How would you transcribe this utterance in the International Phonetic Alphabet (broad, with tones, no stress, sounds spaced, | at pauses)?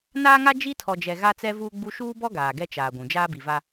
n aː˦ ŋ a˦ d͡ʒ i˦ tʰ ɔ˨ d͡ʒ ɛ˨ ɣ a˦ t͡s ɛ˦ v uː˦ ɡ͡b u˦ ʃ uː˦ b ɔ˦ ɡ aː˨ ɡ ɛ˦ t͡ʃ aː˨ ɡʷ ũ˨ d͡ʒ aː˦ b i˨ v a˦